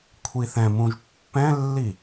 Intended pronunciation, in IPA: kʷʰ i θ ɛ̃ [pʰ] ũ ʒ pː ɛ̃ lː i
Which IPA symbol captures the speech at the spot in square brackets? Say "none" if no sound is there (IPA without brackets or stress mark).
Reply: m